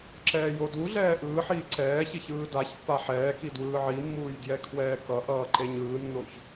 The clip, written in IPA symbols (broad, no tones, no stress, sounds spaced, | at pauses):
ǁ ɛː j o d u ɮ ɛː ʔ ɯː ħ iː ǀ ɛː ç i ç ɯː d a ç pː a ħ ɛː k i d w ɯː ʕ i mː uː j d j ɛ kʰ w ɛː k ʌ ʔ ʌː ǃ e ɲ ɯː nː o ç